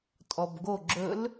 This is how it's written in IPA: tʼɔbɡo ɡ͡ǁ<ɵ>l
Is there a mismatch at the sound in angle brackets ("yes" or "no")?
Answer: no